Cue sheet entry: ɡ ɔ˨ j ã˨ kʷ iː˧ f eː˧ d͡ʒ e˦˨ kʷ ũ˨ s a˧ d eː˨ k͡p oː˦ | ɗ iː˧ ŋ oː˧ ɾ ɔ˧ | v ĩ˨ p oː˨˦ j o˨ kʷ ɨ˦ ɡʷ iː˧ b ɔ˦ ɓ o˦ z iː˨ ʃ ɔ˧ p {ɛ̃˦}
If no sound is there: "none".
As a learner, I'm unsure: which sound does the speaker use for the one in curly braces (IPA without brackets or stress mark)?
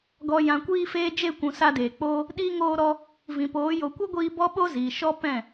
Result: ɛ̃˦˨